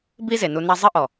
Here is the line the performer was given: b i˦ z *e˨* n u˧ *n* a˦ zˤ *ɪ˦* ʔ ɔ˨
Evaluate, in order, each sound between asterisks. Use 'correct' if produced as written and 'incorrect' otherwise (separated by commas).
correct, correct, incorrect